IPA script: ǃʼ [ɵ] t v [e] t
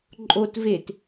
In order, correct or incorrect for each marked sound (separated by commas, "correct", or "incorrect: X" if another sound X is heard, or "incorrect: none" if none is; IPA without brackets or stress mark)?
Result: incorrect: o, correct